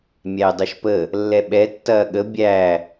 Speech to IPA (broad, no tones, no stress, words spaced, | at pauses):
mʲæy̯dˤɯʃpə | lːɛɓɛ tːɐːɠə bʲæ